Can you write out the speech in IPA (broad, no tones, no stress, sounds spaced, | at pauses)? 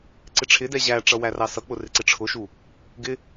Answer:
ǀ ɪ ʈ͡ʂʰ ɪ d ɛ ʑ æ ʈ͡ʂ ʌ w æ r ɑ s ʌ k͡p ʊ r ɪ ǀ ɪ ʈ͡ʂʰ ʊ ʃ u | ɡ ɪ